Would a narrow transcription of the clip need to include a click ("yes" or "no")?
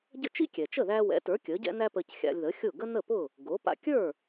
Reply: no